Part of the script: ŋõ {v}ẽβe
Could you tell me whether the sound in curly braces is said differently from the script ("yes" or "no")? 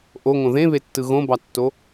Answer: yes